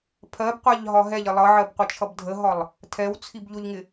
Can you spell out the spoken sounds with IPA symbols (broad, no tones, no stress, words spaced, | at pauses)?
pʰɜbqʷæʎɦɒ ɦɛʎɪ lˠʌʕɜbqʷət͡ʃʰʌb dʱəɦɒlˠ | tʰɛwt͡sʰib ʎʊʎŋɪ